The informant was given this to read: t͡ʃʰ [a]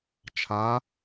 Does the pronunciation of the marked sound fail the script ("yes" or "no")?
no